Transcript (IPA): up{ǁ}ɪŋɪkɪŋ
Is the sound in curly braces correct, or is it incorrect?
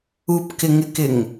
incorrect